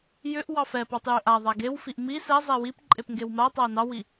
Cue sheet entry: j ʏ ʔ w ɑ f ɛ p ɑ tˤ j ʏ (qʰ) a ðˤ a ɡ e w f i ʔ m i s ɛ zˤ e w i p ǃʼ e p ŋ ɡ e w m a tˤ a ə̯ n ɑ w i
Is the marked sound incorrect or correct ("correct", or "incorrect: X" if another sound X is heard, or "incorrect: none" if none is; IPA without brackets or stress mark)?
incorrect: ʔ